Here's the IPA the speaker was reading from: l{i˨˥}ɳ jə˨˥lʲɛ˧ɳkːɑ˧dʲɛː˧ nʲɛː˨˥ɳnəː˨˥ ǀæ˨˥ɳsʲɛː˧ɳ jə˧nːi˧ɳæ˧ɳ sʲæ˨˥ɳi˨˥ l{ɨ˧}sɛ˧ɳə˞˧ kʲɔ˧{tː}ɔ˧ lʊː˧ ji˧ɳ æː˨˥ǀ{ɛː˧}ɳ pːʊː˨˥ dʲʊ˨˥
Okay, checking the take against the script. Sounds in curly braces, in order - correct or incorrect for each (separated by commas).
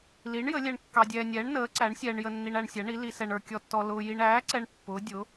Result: correct, incorrect, correct, incorrect